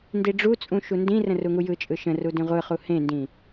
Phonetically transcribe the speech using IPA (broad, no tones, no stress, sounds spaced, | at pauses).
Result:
n d i ɖ͡ʐ u t͡sʼ ũ ʃ u n d ĩ r ə̃ r u ŋ u j ɯ t͡ʃʼ ɯ ʃ ə̃ r u d ĩ ʁʷ ɯ χ u h ẽ n d ĩ